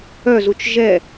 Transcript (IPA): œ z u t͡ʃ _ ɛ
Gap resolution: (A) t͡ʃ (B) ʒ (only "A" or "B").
B